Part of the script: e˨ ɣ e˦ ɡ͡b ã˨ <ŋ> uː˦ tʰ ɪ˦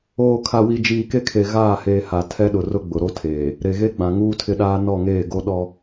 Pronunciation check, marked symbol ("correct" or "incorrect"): correct